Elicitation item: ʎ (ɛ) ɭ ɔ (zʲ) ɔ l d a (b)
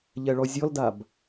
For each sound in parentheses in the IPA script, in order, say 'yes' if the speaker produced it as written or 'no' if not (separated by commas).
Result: yes, yes, yes